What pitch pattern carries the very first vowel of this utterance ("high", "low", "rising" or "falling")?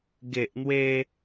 low